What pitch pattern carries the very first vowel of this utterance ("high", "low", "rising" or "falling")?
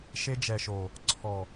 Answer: high